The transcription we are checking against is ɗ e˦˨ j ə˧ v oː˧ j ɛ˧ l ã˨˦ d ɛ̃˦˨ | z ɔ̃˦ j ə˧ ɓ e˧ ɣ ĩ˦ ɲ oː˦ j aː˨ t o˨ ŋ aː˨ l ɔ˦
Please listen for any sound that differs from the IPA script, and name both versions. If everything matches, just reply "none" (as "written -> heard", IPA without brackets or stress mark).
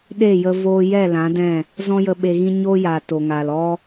ɛ˧ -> ɛ˦˨